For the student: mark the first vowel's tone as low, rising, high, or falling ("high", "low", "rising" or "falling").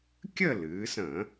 falling